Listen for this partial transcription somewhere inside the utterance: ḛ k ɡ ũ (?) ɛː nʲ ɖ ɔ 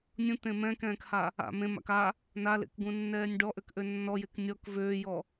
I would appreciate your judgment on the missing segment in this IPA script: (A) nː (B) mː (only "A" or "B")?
A